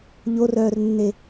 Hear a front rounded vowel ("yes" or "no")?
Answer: yes